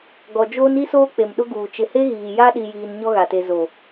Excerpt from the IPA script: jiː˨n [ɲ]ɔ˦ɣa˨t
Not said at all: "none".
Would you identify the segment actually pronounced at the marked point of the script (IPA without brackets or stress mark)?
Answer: ɲ